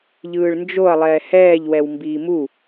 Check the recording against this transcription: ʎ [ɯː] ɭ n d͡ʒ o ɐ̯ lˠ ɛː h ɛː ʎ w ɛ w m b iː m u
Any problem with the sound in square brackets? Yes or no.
no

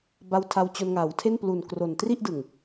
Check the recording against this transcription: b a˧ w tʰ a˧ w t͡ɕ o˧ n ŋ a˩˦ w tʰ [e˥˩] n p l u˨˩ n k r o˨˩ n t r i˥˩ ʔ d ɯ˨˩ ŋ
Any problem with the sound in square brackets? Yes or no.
no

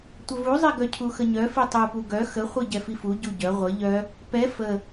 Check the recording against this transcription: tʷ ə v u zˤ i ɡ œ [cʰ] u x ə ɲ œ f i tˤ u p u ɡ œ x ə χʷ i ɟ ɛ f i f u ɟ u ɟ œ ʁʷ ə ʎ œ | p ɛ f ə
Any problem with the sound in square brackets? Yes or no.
no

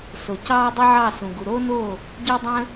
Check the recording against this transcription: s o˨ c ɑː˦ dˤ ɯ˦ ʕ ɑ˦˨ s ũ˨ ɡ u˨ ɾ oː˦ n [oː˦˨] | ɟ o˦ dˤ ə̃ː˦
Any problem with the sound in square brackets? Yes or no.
no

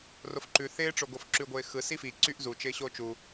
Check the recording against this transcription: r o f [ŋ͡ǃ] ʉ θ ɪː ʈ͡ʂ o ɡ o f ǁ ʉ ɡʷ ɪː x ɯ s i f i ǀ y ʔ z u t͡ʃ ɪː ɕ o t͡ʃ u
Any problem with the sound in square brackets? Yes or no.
yes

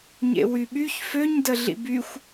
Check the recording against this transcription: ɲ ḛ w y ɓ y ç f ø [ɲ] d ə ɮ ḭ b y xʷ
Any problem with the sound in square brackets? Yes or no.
no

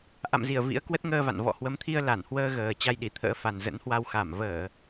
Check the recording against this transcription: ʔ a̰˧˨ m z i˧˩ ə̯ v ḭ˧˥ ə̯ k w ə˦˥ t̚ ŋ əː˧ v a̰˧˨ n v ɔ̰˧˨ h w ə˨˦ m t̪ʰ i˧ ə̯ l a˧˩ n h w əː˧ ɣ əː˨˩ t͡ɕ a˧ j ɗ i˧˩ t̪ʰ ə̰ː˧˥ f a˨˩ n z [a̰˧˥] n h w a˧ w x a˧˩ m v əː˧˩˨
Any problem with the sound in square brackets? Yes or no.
yes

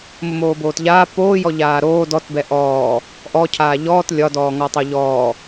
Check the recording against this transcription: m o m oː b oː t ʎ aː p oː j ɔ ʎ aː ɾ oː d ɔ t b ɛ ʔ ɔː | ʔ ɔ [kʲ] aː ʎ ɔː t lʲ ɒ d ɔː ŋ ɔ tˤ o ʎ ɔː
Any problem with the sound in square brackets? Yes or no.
yes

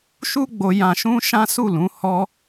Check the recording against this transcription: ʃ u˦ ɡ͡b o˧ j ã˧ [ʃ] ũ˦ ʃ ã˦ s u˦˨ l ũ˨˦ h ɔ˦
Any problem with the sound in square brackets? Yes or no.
no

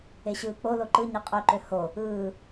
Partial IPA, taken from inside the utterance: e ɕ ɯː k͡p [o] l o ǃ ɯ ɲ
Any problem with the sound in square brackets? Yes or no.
no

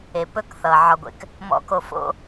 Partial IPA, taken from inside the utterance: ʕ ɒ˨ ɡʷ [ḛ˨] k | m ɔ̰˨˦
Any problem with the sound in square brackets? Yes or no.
no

